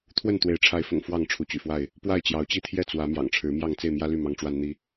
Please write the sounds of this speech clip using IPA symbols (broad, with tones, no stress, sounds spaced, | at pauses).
t̪ʰ w ə˥˨ n t̪ w e˨˦ ɪ̯ ʈ͡ʂʰ a˨˦ ɪ̯ f ʊ̰˨˩ ŋ f w ɑ˥˨ ŋ ʈ͡ʂʰ u˨˦ t͡ɕ y̰˨˩ f w a˥˨ ɪ̯ | p w a˥˨ ɪ̯ t͡ɕ j ɑ˨˦ ʊ̯ t͡ɕ i˦ t̪ʰ j ɛ˥˨ t͡s w ä˨˦ m j ɑ̰˨˩ ŋ ʈ͡ʂʰ ɻ̩˨˦ m j ɑ˥˨ ŋ t͡s e˥˨ ɪ̯ m j ä˦ l y˥˨ m ɑ˦ ŋ ʈ͡ʂ w a˦ n n̪ i˦